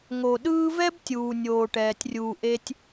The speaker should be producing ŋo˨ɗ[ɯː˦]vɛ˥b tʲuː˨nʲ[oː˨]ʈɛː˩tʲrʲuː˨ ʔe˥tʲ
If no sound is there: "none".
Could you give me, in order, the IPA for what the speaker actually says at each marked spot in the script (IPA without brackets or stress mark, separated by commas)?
ɯː˦, oː˨